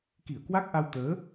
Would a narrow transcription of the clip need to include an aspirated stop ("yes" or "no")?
no